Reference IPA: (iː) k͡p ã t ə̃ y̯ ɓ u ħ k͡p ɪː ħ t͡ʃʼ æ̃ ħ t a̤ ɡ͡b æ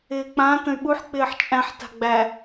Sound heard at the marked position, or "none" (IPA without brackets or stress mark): ɪː